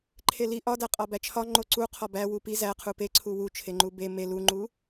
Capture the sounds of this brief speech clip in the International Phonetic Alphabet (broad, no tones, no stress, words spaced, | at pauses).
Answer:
ǃʰeli ʔɒ dæqʼɒbæt͡ʃʰɒ ŋ͡ǃoǀu qʰɒbæ wupi zæqʰu peǀʰu wut͡ʃʰeŋ͡ǃu be me luŋ͡ǃu